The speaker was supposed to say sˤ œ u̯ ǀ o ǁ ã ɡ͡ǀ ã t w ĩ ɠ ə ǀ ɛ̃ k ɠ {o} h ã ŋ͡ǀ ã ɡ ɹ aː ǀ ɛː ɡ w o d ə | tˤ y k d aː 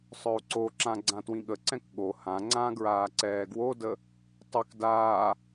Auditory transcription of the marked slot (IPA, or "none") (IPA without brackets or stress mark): o